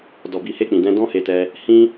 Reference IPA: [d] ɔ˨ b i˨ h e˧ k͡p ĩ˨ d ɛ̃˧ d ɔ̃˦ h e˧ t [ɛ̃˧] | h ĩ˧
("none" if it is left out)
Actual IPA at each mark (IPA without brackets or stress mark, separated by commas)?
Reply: d, ɛ˧